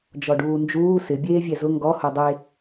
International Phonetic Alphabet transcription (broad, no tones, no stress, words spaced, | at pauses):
d͡ʒɔɖuːnd͡ʒuː sɪ bʲeːvʲɛzʊ ŋɡɔ hodˤe